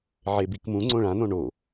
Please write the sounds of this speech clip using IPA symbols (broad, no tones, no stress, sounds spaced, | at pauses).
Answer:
ʕ e b i k m ũ ŋ͡ǀ õ ɭ ã n õ ɳ o